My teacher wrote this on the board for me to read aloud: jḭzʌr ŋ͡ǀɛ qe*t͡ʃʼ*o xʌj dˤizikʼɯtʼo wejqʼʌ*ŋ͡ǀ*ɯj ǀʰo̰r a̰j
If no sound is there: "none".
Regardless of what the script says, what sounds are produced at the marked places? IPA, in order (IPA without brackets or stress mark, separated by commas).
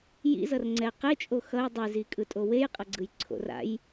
t͡ʃʼ, ɡ͡ǀ